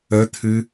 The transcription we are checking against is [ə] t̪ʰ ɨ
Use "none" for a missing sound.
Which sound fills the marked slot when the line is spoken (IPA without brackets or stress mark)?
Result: ə